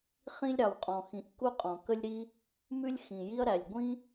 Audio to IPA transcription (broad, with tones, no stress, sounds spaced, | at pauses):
χ ĩ˥ lʲ ɾ ɑ˩ w qʼ ɔ̃˩ x ĩ˩ ʔ k u˥ qʼ ɔ̃˩ k ə˥ lʲ ɾ i˥ | m ʉ˥ lʲ x ĩ˩ j i˥ ɐ̯ ɾ æ˩ lʲ ɡʷ ĩ˥